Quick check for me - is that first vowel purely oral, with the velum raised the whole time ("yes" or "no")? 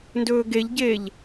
yes